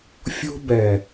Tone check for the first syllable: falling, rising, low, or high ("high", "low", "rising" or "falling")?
high